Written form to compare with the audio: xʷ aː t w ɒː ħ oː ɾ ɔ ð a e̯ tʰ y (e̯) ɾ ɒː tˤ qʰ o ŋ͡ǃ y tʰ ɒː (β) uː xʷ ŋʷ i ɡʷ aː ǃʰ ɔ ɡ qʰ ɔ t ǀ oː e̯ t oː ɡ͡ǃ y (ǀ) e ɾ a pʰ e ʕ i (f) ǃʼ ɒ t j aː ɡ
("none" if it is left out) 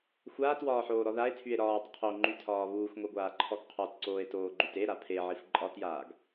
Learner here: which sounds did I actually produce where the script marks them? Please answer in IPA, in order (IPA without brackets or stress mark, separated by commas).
e̯, β, t, f